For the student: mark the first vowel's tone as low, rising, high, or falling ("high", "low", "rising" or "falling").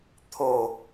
falling